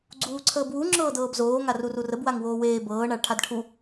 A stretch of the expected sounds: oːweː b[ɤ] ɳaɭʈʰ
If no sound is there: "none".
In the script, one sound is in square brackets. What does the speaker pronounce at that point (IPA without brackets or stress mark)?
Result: ɤː